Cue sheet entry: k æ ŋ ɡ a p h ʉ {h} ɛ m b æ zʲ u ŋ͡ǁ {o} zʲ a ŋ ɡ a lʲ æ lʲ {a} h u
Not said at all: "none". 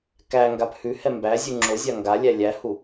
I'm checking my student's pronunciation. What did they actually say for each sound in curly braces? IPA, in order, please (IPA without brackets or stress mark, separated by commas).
h, o, æ